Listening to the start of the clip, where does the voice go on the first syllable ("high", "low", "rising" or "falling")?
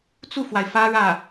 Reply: falling